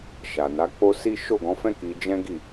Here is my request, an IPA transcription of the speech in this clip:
ʃ a˨ n a˨˦ k͡p o˦ s i˦ ʃ o˦˨ ɡ ɔ̃˨˦ f ɛ̃˦ k i˧ d͡ʒ ɛ̃˦ ɡ i˦˨

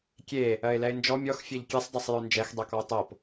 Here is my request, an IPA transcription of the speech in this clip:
kʲ e | ɜ ɪ̯ l ɛ ɪ̯ n d͡ʒ ɔ mʲ ɔ x fʲ ɛ ʎ kʲ ɛ sˤ dˤ ɤ sˤ j œ n d͡ʒ ɛ x dˤ ɜ k ɔ ʊ̯ tˤ ɤ p

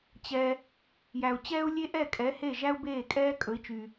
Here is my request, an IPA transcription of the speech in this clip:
t͡ɕ ɛ˩ | j æ˩ u̯ t͡ɕ ɛː˥ u̯ lʲ e˥ ʔ ɛ˥˩ kʼ ɛ˩˥ h e˥˩ ʒ æ˥ u̯ b eː˥˩ kʼ ɛː˥ kʼ ɵ˩˥ i̯ t͡ʃ y˩

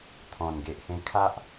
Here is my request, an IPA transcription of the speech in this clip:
t̪ʰ ɔ̃˨˩ n ɡ e˨ ʔ h ẽ˧ kʰ a˦ ʔ

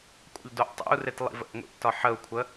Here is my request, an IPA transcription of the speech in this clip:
kʷʼ ə̰ ʎ d o ʔ tˤ ḛ u̯ r e t lˠ ḭ v ə̰ ʔ ŋʷ ḭ ʔ t ɒ ħ ə u̯ kʷʰ ə

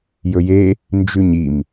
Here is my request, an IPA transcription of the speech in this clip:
j ɵ j e | n d͡ʒ ʉ ɲ i m

